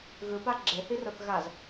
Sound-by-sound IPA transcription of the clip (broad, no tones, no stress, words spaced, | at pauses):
ɣɯpa ɡ͡ǁehiroθ ɣaz